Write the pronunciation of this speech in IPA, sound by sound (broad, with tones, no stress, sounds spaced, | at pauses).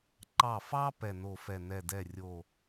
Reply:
ǃ ɑ˧˩ f ɑ˥ p ɛ˧˩ n o˧˩ f ɛ˧˩ n ɛ˧˩ d ɛ˥˩ rʲ o˥˩